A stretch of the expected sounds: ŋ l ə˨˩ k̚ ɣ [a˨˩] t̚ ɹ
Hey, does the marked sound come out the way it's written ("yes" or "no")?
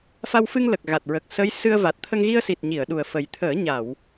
yes